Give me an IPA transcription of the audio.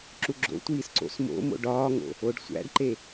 ǁuɡ͡ǁo̰tʷiːs ǀo̰smo̰mo̰ ɖɒːŋo̰ | oɖsʷæ̰ɖǃe

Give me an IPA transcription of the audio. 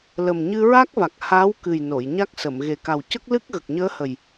lə˨˩mɲɨ˧ɹa˦˥k̚va˨˩k̚ ha˧˥wkɨ˨˩j no˨˩˨jɲa˦˥k̚sə˨˩˨m ɣe˨˩ka˨˩wcə˦˥k̚lɨ˦˥k̚ ɣə˨˩k̚ɲəː˧˥hə˨˩j

